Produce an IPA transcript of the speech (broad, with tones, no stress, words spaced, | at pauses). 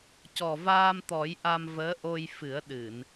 cɔ˨˩vaː˧mt̪ɔ˨˩˦j ʔa˧mvəː˧˥ʔo˧j fɨ˨˩˦ə̯ɗɨ˨˩˨n